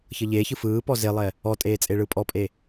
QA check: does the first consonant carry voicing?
no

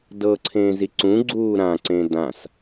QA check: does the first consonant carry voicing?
yes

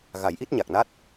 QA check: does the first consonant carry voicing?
yes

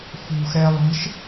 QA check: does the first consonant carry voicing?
no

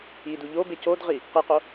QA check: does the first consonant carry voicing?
yes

